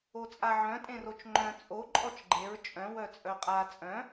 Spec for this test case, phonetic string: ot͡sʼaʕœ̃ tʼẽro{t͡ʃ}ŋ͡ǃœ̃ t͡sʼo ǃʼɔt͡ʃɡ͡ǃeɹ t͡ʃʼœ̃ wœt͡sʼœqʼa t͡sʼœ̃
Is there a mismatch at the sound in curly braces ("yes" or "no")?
no